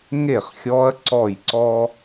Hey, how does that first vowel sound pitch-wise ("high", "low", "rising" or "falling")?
falling